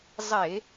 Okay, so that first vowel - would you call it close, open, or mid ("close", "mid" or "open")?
mid